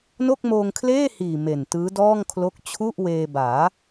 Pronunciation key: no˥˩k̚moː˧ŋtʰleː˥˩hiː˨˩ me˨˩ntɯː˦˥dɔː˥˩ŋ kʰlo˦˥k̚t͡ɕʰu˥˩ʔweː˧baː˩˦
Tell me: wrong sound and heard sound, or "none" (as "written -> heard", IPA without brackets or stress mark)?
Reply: tʰ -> kʰ